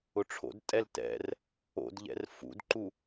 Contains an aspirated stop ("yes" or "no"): yes